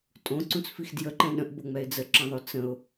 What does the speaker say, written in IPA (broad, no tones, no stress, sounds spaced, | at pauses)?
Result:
tʼ õ ǀ ũ t͡s f i x d j ə ǃ ɛ̃ ɗ ə̃ ʔ b o ŋ͡m ɛ ɪ̯ d͡z ə ǁ ə̃ ðˤ o t͡s ə̃ ʊ̯